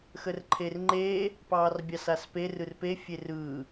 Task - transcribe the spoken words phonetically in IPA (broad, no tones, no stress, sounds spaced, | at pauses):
x ə r ǃʰ e r ŋ͡ǃ eː | p ɑː r bʲ ɑ s a s p e r ɯ r p e fʲ e r ɯː